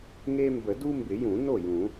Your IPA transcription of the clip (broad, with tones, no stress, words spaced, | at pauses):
ŋe˦ mbə˨˩˦du˦mbɪ˨˩˦jũ˨˩˦ no˥˩jũ˨˩˦